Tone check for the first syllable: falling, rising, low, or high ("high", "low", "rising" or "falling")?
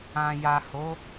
low